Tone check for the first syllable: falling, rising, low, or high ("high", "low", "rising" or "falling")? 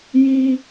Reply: high